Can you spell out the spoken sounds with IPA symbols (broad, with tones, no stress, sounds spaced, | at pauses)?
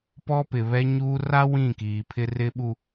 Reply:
p ɔ˦ p ɪ˨ β ɛ˦ ɲ uː˦ r a˦ w ĩ˦˨ k iː˨ pʰ ɪ˦ r ɪ˦ ɓ u˦